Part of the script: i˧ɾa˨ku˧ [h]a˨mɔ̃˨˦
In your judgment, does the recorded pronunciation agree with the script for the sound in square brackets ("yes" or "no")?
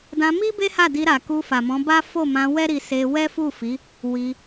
no